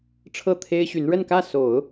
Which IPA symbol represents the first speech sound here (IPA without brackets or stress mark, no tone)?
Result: ʈ͡ʂʰ